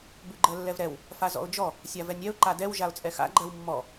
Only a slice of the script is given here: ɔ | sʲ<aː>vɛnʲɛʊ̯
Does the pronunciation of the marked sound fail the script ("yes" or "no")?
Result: yes